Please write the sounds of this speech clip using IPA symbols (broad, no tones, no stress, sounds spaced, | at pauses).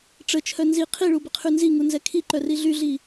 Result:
ʈ͡ʂ ə t͡ʃʰ œ n z i qʰ i ɭ u b ə qʰ y n z i ŋ u n z ɛ kʰ i ǃ œ r i ɮ y ɮ i